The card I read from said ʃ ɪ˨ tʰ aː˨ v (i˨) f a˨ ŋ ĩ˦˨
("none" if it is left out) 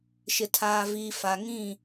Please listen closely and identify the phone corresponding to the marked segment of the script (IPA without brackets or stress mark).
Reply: iː˨